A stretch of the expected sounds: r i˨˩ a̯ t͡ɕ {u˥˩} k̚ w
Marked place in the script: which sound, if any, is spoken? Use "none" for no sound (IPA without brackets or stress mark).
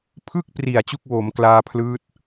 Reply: u˥˩